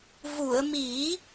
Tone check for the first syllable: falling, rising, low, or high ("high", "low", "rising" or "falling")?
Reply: low